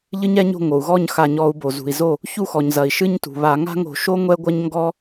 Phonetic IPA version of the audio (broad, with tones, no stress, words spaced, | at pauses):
ʎɨ˦ɲɛ˦ɲo̤˥˩ŋo˩u̯ ɣɔ˥˩ɲxa˧˩˧ɲɔ˧˩˧u̯bo˩ zṳ˩i̯zo˥˩ | çu˥˩xɔ˩ɲzɐ˩i̯ ʃɨ˦ɲtṳ˩βa˧˩˧ ŋa̤˦ŋo̤˧˩˧ʃo˦ ŋʷɛ˦ɡʷɐ˦ɲŋɡɔ˦